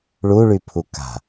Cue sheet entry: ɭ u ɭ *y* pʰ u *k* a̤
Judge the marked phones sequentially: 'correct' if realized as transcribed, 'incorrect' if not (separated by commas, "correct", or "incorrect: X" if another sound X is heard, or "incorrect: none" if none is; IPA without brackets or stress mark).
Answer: correct, correct